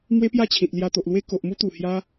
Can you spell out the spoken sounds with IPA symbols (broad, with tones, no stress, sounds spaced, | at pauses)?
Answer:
m w e˦ p j a˥˧ t͡ɕʰ ĩ˨ t̚ l j a˧ t̪ o˨ ʔ l w e˦ k o˨ ʔ m u˦ t̪ u˨˩ h j a˧